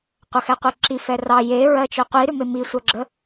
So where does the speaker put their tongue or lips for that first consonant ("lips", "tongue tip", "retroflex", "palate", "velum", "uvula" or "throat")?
uvula